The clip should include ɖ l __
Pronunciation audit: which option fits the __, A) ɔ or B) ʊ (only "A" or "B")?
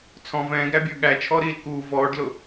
B